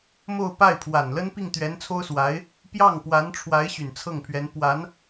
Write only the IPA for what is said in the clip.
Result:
m o˥˧ ʊ̯ p a˥˩ ɪ̯ pʰ w a˨˩ n l ə˥ n p i˥˩ ŋ t̪ ɥ ɛ˧˥ n t͡sʰ o˥ ʊ̯ s w a˧˥ ɪ̯ | p j ɑ˥˩ ŋ p w a˧˥ n ʈ͡ʂʰ w a˧˥ ɪ̯ ɕ y˨˩ n t͡sʰ ɤ˥˩ ŋ pʰ ɥ ɛ˧˥ n p w a˧˥ n

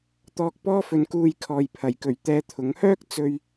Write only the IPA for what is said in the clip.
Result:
t̪ ɔː˧ k̚ p ɔː˥ f ɵ˨˧ n k uː˧ j kʰ ɔː˨ j pʰ ɐ˨˩ j k ɵ˨˩ ɥ t̪ ɛː˧ t̪ʰ ʊ˨˥ ŋ h œː˥ k̚ t͡s ɵ˨ ɥ

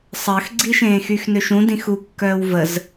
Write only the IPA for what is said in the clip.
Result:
sˤ əː x ɡ͡ǀ i ʃ ẽː x y x n ø ʃ ũ d ĩ x u kː œː w v ə z

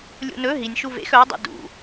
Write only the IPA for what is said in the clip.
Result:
lʲ ṵ n ɵ ɦ i nʲ ʃ u v ḛ x œ ʊ̯ dˤ ṵ d ṵ

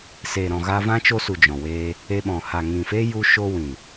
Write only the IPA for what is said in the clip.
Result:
s e˨ ɾ ɔ̃˨ ɣ a˧ v ã˦ t͡ʃ o˧ s u˨ d͡ʒ ɔ̃˨ w eː˧ | e˧ ɓ ɔ̃˨ h a˨ ŋ ĩ˨ f e˦ j u˧ ʃ o˧ w ĩ˨

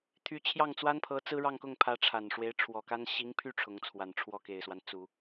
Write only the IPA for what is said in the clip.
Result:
t̪ʰ y˧˥ t͡ɕʰ j ɑ˥˩ ŋ t͡s w a˥ n pʰ ɤ˧˥ t͡s ɹ̩˥ ɻ ɑ˥˧ ŋ k ʊ˥˩ ŋ pʰ ä˧˥ ʈ͡ʂʰ a˨˩ n ʂ w e˧˥ ɪ̯ ʈ͡ʂʰ w ɔ˨˩ k a˥ n ɕ i˧˥ ŋ pʰ y˥˩ ʈ͡ʂʰ ʊ˧˥ ŋ t͡sʰ w a˨˩ n ʈ͡ʂʰ w ɔ˥˩ k e˨˩ ɪ̯ s w a˦ n t͡s u˨˩˦

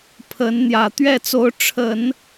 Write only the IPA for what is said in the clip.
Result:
pʰ ə˧˥ n n̪ j ä˨˩ t̪ ɥ ɛ˥˩ t͡s o˧˥ ʊ̯ ʈ͡ʂʰ ə˨˩˦ n

